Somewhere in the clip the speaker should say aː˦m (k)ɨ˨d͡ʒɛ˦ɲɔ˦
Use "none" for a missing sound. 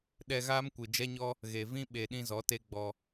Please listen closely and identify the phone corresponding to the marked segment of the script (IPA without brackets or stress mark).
kʷ